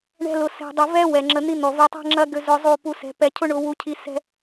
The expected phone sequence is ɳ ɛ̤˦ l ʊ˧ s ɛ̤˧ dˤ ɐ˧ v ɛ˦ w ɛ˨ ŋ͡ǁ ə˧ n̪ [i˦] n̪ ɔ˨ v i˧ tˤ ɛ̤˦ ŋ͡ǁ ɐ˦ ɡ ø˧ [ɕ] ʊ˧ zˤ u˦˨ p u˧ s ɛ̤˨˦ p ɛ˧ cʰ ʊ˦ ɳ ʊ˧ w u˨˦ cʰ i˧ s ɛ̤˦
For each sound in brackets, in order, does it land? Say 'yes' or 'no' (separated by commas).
yes, no